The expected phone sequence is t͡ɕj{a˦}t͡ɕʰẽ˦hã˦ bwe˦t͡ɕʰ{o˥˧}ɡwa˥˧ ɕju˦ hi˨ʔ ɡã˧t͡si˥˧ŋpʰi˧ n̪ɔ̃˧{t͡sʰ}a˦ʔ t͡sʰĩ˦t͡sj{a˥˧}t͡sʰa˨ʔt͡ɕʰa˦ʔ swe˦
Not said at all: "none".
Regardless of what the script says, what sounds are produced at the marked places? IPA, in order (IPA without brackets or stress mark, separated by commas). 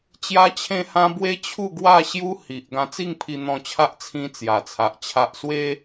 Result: a˦, u˥˧, t͡ɕʰ, a˨˩